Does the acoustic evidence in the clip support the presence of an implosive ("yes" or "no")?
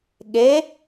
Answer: yes